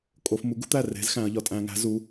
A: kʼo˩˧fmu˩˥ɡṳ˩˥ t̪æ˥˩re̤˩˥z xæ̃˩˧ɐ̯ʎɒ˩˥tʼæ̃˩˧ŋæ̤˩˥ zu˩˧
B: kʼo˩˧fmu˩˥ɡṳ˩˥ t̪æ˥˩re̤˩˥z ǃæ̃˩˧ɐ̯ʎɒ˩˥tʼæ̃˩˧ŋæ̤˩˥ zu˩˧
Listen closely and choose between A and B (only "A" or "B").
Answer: A